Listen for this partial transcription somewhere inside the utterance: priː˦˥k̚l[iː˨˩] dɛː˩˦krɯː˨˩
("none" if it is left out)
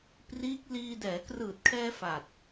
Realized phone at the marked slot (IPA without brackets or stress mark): iː˧